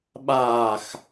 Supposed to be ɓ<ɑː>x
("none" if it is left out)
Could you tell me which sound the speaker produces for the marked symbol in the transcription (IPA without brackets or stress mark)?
aː